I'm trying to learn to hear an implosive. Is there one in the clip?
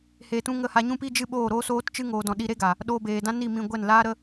yes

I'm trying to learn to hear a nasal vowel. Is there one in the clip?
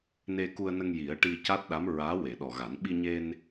no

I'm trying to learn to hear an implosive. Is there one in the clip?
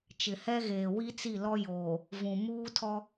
no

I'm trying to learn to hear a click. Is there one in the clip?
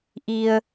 no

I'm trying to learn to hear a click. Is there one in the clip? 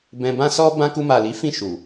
no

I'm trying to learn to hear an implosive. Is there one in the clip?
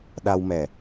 yes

